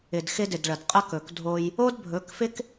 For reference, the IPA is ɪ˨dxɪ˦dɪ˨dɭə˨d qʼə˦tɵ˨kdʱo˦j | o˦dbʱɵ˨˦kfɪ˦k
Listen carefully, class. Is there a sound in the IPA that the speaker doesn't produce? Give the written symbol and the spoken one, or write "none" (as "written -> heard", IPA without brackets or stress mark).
t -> k